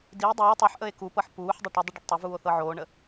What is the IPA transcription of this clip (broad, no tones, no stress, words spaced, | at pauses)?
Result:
di dˤuː tˤɤħ ʔəe̯kupɤħ puːħdˤə ʈədˤə ɖəɖtˤʊvuːo̯ θɤʕoːɳə